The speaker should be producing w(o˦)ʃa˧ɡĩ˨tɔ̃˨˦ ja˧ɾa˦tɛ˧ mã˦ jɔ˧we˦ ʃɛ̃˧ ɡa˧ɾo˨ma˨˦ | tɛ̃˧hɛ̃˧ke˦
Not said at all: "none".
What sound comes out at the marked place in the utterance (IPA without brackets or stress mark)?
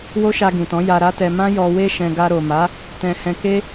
o˦